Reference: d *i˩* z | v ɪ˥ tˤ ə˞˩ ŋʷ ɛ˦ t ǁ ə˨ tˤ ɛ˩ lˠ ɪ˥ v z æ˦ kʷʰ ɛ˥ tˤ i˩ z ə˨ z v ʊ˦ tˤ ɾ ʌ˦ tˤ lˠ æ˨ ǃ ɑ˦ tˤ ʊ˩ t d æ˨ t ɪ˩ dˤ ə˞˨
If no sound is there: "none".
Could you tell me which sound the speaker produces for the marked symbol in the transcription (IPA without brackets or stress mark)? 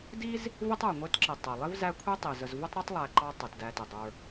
i˥